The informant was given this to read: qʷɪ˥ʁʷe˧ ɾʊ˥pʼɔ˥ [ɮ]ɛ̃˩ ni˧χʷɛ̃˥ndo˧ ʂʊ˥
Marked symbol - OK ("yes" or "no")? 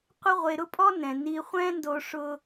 no